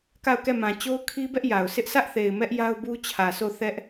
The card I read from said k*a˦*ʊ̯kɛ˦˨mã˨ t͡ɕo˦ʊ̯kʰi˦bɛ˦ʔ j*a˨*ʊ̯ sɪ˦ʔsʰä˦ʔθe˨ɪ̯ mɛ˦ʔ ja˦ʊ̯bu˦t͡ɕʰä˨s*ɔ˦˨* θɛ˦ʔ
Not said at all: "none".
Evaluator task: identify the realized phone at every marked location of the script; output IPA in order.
a˦˨, a˨, o˦˨

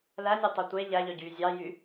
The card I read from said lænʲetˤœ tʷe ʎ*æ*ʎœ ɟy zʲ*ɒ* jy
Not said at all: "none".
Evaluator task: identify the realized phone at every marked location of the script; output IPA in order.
æ, ɑ

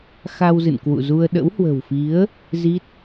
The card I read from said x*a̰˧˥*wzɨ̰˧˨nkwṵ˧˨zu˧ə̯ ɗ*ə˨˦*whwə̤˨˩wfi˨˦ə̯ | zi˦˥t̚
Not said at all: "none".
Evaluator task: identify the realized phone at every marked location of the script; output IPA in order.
a˧, ə̰˧˥

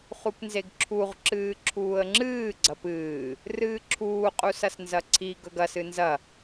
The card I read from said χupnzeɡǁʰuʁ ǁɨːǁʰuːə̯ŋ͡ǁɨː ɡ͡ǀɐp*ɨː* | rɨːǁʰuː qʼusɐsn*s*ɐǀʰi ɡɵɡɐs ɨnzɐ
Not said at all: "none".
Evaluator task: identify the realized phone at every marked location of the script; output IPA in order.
ɨː, z

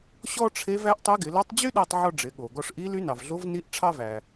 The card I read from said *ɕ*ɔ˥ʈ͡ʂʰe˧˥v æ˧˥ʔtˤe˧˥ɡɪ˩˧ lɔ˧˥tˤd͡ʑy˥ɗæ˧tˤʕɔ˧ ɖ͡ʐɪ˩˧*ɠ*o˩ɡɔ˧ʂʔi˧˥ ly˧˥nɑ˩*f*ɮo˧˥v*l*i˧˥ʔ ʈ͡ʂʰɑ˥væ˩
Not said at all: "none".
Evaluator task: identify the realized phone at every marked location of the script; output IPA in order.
ɕ, ɠ, v, n

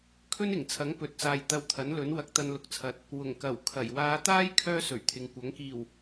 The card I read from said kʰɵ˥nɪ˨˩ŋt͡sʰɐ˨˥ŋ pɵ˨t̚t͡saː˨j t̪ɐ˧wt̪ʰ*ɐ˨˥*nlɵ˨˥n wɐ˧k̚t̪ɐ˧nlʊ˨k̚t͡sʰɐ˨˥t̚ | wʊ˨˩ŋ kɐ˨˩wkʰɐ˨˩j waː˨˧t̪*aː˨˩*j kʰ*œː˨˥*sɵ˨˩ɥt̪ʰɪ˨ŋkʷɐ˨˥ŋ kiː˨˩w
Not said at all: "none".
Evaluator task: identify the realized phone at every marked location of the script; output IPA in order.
ɐ˨˥, aː˥, œː˥

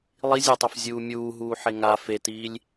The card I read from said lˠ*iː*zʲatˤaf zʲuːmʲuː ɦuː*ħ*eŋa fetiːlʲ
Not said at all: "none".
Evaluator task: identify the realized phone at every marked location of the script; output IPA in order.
i, ħ

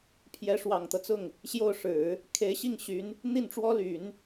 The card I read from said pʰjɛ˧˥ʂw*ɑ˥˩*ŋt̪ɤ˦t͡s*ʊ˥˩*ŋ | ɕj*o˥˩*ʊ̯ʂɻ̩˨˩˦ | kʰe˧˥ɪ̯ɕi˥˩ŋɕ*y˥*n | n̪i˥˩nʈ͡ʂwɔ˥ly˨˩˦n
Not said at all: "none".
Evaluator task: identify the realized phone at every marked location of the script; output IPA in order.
ɑ˨˩, ʊ˥˩, o˥˩, y˧˥

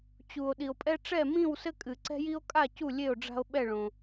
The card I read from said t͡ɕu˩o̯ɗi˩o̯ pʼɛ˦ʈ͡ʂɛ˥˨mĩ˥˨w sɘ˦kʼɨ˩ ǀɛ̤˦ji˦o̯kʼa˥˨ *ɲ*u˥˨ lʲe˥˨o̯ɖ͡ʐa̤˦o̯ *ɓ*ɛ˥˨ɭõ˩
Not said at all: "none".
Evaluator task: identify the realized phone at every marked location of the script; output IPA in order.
c, ɓ

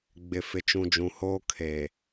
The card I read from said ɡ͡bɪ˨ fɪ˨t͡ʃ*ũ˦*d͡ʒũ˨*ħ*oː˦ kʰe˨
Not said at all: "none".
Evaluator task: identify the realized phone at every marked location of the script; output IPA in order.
ũ˨, h

